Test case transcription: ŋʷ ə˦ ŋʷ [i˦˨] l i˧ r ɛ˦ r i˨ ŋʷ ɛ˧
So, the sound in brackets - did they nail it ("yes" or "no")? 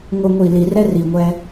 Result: yes